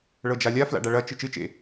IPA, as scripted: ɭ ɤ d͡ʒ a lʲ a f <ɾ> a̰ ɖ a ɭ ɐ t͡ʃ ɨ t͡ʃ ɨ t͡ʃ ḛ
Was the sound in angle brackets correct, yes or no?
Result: no